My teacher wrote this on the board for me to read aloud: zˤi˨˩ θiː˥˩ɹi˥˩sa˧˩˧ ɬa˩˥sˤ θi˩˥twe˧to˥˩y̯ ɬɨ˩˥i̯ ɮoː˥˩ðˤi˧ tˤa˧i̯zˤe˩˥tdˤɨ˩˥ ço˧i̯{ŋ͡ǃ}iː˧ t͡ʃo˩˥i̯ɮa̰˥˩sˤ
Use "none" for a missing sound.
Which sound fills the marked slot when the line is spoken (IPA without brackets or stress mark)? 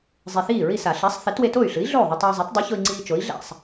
ŋ͡ǀ